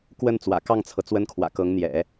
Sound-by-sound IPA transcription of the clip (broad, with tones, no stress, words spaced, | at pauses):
kwə˥˩nt͡swä̰˨˩ kɑ˥˩ŋt͡sʰɤ˩ t͡swə˥nkʰwä̰˨˩kɤ˧˥ŋn̪jɛ̰˨˩˦